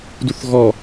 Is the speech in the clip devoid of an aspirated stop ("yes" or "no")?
yes